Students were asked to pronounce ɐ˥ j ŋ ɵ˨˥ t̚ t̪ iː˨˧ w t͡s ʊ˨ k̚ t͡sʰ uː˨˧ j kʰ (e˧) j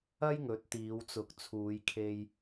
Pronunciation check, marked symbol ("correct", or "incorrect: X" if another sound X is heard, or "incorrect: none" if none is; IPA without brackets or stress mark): correct